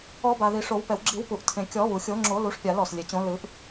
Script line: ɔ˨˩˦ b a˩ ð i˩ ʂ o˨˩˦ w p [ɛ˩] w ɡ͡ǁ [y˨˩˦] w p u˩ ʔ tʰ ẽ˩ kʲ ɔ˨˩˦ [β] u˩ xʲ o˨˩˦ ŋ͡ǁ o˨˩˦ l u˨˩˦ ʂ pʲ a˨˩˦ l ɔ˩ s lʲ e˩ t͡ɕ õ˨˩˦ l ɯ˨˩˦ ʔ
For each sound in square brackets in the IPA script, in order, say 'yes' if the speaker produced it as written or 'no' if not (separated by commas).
yes, no, yes